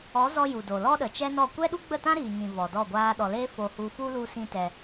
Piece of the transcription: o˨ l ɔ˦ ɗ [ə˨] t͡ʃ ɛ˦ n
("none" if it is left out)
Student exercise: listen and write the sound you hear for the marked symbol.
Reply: ə˨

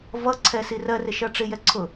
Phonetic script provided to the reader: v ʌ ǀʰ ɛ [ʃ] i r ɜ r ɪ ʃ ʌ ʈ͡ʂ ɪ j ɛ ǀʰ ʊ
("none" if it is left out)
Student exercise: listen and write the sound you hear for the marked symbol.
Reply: s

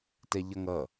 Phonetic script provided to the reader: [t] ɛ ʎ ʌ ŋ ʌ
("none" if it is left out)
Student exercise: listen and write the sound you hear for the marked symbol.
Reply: t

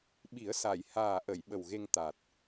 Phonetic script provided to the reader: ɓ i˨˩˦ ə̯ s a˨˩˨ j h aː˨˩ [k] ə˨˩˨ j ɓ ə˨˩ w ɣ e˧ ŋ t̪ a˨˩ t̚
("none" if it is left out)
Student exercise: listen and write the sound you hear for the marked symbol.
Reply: ʔ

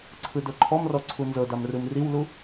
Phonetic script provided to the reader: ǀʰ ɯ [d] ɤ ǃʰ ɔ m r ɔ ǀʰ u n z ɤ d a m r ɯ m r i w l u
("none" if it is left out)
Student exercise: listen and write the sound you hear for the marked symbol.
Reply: d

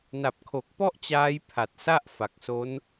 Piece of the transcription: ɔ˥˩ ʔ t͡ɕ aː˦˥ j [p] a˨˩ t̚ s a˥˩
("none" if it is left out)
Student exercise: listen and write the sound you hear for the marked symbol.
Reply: pʰ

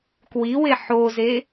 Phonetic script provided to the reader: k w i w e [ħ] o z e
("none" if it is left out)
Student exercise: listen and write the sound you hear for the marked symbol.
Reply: ħ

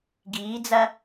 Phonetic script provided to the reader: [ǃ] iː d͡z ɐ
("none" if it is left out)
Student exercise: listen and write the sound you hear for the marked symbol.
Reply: ɡ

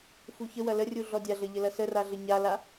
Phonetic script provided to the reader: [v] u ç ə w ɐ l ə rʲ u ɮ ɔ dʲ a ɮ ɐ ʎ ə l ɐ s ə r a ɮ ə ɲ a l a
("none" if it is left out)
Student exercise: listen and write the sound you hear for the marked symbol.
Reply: f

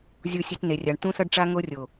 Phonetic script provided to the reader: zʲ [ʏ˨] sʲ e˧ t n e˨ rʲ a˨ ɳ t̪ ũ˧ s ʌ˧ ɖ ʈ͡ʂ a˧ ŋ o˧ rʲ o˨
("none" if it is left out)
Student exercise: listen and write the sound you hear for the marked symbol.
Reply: u˨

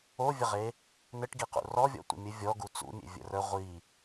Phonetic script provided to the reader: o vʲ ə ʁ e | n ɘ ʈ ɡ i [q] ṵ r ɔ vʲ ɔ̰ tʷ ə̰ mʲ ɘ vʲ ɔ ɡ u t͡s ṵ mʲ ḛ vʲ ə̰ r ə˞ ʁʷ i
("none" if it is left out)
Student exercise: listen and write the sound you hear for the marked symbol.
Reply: q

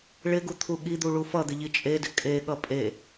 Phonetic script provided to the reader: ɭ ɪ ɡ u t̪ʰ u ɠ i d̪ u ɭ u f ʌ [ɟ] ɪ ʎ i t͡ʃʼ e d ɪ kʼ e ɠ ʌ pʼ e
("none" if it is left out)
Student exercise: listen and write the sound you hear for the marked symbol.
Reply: d̪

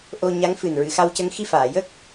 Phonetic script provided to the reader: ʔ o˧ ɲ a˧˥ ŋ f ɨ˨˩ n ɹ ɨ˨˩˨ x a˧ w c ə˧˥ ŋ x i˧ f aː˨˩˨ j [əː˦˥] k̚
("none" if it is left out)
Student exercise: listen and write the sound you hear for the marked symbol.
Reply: əː˦˥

